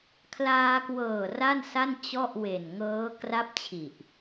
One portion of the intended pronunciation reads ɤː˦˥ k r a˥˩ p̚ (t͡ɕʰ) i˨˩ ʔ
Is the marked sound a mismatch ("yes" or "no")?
no